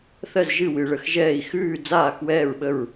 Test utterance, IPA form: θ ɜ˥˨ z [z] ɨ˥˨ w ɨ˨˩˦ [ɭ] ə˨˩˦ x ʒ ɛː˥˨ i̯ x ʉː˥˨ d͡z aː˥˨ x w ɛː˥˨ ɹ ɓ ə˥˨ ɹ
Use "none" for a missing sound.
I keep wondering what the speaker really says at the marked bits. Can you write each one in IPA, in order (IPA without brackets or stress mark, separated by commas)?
ʒ, ɭ